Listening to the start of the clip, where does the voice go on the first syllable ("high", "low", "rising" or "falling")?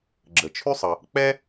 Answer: low